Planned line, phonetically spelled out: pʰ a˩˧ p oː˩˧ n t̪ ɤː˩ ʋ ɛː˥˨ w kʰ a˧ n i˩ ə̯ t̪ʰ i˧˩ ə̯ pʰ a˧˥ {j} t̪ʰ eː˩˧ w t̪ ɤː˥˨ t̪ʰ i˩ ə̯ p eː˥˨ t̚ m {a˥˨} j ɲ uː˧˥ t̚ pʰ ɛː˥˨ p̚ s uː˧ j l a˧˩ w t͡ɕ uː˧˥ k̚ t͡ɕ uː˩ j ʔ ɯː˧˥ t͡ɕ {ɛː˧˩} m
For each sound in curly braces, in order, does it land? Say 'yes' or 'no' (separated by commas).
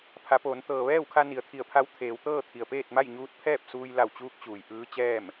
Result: no, yes, no